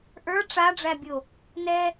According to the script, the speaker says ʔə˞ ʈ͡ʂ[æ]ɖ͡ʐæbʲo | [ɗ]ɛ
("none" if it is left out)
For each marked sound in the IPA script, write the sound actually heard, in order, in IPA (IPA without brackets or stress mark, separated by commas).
a, n